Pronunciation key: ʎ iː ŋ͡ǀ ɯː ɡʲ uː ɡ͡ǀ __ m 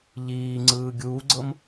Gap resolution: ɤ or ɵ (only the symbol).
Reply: ɤ